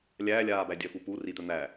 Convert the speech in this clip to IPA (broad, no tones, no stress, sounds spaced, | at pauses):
lʲ æː lʲ aː b æ dʲ œ f u p u r i t̪ œ n̪ æ